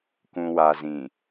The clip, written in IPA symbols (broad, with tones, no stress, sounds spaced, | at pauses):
k ũ˨ w a˨ z ĩ˨